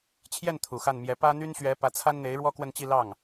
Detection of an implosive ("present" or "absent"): absent